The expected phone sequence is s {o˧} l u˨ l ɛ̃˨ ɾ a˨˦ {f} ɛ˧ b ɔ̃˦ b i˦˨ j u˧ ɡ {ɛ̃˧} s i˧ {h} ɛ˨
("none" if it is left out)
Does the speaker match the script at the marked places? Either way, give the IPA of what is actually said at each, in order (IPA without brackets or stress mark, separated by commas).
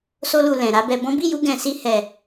o˧, b, ɛ̃˨, h